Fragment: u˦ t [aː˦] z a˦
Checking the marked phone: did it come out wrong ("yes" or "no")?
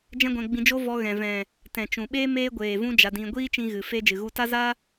yes